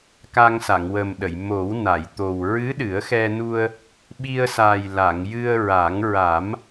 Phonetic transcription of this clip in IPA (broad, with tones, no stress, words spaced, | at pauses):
ka˧ŋsa˨˩˨ŋwə˨˩mɗə˨˩˨j mo˨˩˦w na˨˩˨jt̪o˨˩w ɹɨ˧˥ɗɨ˨˩˦ə̯xɛ˧nu˧ə̯ | ɓi˧ə̯sa˨˩jla˨˩˨ŋjɨ˧ə̯ ɹa˨˩˦ŋɹa˨˩˦m